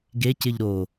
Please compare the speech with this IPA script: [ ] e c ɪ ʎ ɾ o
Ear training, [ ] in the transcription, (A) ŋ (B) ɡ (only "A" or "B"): B